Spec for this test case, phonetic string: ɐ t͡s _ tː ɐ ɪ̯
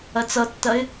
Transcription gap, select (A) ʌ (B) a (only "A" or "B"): A